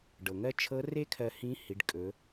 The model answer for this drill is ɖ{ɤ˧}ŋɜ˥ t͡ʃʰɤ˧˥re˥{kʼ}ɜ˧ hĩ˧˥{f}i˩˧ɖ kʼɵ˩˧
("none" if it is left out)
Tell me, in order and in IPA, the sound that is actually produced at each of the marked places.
ɤ˩, kʰ, h

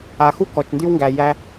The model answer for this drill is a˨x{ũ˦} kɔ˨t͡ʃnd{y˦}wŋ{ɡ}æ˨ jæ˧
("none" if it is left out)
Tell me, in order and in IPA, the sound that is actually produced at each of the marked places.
u˦, y˦, ɡ

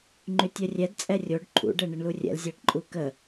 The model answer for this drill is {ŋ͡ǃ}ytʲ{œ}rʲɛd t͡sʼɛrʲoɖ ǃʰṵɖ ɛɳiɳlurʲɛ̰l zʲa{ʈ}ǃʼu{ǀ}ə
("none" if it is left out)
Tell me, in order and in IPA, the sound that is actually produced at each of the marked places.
ŋ͡ǃ, œ, ʈ, k

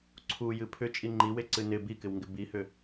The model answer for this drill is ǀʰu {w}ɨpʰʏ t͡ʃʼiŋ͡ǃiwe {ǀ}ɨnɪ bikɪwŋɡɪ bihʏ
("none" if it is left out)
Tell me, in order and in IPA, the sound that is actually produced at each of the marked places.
j, ǀ

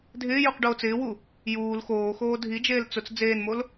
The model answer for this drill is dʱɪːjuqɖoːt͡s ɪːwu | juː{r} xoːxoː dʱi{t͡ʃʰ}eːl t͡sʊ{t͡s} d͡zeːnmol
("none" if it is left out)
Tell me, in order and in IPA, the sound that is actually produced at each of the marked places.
l, d͡ʒ, t͡s

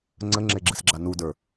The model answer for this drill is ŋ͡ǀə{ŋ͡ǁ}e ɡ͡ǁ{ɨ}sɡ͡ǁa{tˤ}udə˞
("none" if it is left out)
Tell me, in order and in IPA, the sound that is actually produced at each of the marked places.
ŋ͡ǁ, ɨ, n

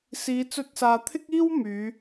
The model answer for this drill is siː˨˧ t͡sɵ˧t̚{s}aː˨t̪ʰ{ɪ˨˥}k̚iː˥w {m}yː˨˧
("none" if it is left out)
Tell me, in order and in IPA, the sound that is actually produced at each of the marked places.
s, ɪ˥, m

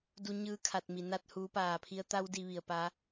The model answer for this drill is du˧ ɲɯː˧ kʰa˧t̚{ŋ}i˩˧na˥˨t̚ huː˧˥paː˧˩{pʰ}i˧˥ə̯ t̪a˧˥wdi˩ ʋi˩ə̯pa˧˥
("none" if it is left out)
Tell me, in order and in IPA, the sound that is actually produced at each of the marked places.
m, pʰ

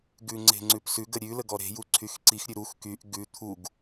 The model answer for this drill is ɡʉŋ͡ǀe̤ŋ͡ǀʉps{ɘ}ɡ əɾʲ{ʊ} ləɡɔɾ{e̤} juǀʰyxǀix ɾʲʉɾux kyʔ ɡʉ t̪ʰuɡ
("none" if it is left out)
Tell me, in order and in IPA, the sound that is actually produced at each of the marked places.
ʉ, ʉ, e̤

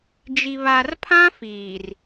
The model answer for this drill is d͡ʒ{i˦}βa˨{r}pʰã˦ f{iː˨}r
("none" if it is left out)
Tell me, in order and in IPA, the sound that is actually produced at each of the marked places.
i˨, r, iː˨

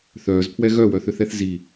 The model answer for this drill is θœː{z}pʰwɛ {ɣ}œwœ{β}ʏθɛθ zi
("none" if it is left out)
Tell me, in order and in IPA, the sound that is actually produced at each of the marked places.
z, ɣ, θ

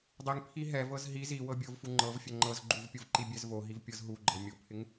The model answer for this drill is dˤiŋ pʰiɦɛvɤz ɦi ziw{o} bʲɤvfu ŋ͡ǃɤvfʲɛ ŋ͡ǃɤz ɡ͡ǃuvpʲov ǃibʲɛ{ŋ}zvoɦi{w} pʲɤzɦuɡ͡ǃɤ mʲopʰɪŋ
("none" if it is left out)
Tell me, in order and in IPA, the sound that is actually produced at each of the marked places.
ɤ, none, v

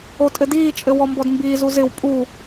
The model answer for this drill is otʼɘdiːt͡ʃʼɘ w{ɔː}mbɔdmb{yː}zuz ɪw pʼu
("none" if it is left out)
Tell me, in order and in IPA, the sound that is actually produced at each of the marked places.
ɔ, iː

